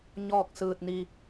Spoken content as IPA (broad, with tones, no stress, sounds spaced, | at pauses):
ɲ ɔː˥˨ k̚ s ɯː˧ t̚ n i˧